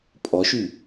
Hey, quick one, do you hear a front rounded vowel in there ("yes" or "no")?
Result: yes